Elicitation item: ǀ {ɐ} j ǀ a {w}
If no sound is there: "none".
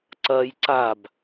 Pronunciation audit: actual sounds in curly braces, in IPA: ɐ, b

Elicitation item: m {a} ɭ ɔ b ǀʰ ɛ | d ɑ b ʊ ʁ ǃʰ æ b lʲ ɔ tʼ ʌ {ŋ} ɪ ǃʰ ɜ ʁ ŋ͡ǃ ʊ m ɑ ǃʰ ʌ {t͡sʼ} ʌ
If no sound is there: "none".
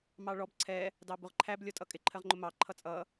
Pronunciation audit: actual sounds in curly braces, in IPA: ɑ, kʼ, t͡sʼ

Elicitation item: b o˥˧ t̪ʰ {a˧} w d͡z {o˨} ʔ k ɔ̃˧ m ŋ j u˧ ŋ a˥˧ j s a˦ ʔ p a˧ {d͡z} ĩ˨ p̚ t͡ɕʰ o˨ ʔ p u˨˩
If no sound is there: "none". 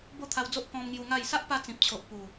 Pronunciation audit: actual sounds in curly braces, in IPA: a˧, o˦, t͡s

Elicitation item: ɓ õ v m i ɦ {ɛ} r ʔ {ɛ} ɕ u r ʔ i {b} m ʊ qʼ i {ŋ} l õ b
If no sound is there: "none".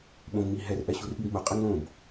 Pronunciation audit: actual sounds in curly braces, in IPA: ɛ, ɛ, b, ŋ

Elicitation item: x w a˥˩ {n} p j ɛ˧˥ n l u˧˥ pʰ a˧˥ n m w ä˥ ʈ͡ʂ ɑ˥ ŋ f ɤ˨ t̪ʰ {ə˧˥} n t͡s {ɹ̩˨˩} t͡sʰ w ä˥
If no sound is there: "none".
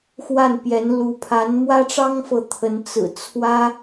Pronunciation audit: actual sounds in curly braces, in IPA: n, ə˧˥, ɹ̩˨˩

